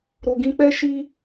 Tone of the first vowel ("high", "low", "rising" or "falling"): low